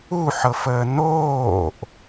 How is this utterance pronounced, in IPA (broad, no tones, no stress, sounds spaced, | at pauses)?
u ħ ɤ f əː n̪ oː ʔ